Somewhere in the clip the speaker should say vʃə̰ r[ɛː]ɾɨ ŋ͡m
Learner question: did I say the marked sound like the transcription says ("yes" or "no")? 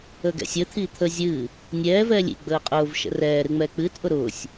yes